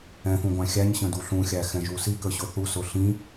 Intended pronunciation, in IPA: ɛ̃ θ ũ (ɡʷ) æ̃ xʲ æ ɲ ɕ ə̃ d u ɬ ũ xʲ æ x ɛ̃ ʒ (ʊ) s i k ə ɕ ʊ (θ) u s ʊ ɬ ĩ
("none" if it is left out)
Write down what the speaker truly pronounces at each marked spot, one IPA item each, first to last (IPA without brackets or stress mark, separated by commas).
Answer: ɡʷ, u, θ